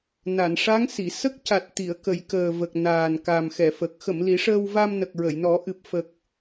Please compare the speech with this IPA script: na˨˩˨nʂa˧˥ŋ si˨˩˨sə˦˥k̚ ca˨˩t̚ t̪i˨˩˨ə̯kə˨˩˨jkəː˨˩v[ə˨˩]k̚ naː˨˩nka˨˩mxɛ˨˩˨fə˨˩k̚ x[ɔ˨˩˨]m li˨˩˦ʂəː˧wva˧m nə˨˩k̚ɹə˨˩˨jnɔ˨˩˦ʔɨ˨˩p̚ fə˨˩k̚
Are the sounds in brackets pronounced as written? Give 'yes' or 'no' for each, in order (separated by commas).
yes, no